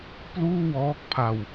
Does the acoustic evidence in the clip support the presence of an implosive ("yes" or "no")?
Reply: no